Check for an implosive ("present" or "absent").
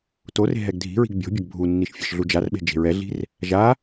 present